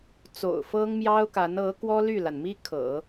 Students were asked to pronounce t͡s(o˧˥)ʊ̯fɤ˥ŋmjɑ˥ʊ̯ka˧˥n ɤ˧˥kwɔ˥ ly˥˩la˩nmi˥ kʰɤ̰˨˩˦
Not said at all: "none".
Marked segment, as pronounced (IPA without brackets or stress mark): o̰˨˩